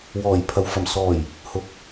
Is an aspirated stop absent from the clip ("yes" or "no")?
no